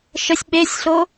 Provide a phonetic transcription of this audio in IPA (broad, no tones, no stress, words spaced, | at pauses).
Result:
ʃəsʲ ɓesʲɬo